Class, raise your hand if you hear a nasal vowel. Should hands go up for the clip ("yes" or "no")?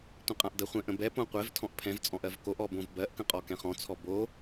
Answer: yes